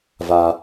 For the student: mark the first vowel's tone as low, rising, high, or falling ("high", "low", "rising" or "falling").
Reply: low